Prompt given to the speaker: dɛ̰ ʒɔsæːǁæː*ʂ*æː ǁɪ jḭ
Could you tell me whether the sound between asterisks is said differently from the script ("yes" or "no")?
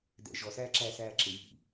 yes